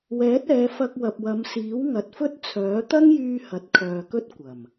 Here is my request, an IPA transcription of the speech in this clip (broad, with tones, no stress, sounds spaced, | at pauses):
w ɛː˨˥ t̚ ɛː˨˧ f ɐ˧ k̚ w ɐ˨ p̚ w ɐ˨˧ m s iː˨˥ w ŋ ɐ˨ t̚ f ɵ˥ t̚ t͡sʰ œː˨˥ t̪ ɐ˥ ŋ j yː˧ h ɐ˨ t̚ kʰ œː˨ k ɵ˥ t̚ kʷ ɐ˨˩ m